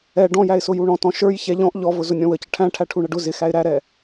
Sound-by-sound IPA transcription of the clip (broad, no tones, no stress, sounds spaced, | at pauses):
ɛ ɖ ɔ̃ j æ ɪ̯ s ʊ j u ɳ ɔ̃ t ɔ̃ ʃ ə˞ j ç ɛ ʎ ɔ̃ ʔ ʎ ɔ v ʊ z ʊ nʲ ɔ̃ w ə c ə ʈʰ æ̃ ʈʰ æ ʈʰ u ɳ ə ɖ ʊ z ɪ x æ ɪ̯ ɾ æ ɾ ɛ